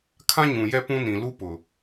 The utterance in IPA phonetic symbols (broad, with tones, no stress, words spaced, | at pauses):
kʰã˦ɲũ˨jɛ˦pũ˦ nĩ˨ lu˦pʊ˨